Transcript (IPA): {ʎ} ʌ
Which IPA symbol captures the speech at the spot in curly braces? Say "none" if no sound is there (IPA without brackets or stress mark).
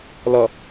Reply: l